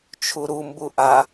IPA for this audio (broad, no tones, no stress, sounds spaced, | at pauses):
t͡ʃʰ u ɾ u m b u ʔ a